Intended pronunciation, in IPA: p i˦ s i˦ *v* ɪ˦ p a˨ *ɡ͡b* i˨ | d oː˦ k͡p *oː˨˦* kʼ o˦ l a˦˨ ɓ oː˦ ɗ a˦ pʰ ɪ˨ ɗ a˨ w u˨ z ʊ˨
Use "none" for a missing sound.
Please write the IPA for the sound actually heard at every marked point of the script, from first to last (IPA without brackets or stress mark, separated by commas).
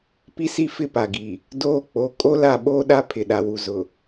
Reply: f, ɡ, o˨˦